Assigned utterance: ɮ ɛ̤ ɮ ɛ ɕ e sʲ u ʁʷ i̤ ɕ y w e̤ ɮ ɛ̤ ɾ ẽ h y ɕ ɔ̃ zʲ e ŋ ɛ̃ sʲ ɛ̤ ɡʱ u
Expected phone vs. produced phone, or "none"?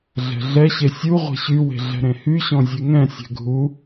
i̤ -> e̤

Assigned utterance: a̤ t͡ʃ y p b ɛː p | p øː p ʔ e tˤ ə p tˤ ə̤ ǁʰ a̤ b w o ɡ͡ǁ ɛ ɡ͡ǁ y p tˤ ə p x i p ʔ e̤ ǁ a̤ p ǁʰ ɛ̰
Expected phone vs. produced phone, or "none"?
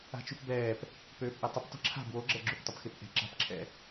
i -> e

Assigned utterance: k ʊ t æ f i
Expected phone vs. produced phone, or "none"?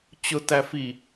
k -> t͡ɕ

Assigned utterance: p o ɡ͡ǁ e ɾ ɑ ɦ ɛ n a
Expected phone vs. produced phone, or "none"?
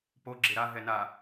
ɑ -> a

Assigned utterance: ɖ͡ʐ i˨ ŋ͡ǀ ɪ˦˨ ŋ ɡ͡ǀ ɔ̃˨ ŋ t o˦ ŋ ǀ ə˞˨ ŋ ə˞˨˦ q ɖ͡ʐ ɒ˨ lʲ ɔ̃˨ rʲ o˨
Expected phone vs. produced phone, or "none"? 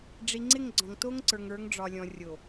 q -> ŋ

